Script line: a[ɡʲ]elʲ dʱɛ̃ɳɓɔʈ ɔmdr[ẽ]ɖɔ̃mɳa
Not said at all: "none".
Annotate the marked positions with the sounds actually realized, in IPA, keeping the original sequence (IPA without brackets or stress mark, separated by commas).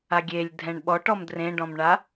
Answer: ɡʲ, ẽ